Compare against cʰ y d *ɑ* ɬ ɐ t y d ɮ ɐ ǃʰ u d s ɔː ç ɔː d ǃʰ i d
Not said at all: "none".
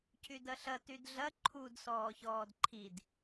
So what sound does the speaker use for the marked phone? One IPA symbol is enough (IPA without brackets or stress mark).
ɐ